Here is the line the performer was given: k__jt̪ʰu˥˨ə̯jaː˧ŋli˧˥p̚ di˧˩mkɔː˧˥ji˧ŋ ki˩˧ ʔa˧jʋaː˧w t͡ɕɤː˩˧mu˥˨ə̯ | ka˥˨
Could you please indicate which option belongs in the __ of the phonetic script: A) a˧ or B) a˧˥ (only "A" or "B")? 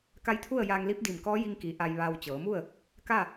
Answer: B